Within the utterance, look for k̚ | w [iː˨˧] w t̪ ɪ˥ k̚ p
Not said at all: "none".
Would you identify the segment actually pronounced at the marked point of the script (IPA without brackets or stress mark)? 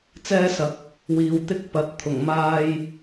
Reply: iː˨˧